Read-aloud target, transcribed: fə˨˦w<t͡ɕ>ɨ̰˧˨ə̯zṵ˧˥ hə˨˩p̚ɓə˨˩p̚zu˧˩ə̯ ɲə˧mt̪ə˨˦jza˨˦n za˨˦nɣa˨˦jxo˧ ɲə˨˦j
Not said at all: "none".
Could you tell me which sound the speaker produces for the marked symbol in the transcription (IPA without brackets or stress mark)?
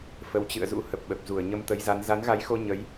t͡ɕ